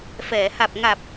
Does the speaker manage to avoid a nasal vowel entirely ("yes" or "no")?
yes